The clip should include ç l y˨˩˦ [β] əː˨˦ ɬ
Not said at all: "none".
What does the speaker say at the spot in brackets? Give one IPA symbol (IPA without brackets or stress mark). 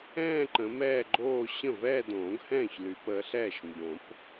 p